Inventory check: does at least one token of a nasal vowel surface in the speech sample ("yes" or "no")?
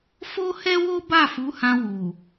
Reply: yes